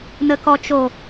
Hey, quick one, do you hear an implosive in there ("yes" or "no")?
no